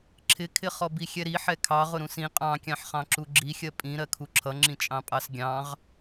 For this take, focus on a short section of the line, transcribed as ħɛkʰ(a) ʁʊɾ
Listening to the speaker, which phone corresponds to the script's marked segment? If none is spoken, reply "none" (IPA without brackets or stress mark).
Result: ɑ